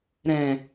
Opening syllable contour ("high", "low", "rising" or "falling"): low